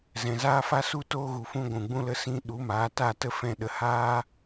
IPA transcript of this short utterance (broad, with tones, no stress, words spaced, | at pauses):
zɛ̃˨zaː˦fa˦su˦ toː˦ɣu˨fũ˦ ɡʷũ˨ɡ͡bũ˦lə˦ sĩ˦ ɗu˨˦maː˨˦ ta˦˨tə˦fɛ̃˧ɗə˨ haː˦